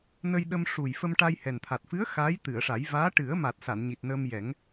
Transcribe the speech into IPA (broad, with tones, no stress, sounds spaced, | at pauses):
n ə˧ j ɗ ə˧ m ʂ u˨˩ j f ə˧ m ʈ a˧ j h ɛ˨˩ n t̪ʰ a˨˩ t̚ f ɨ˧˥ ə̯ x a˧˥ j t̪ ɨ˨˩˨ ə̯ ʂ a˨˩˦ j v aː˧˥ ʈ ɨ˨˩˦ ə̯ m a˨˩ t̚ s a˨˩˨ n ɲ i˨˩ t̚ n əː˧ m j ɛ˨˩˦ ŋ